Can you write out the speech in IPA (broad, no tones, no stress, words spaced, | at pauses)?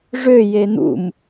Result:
ʐø jen̪ṵm